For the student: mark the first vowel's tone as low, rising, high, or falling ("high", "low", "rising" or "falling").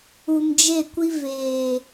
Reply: low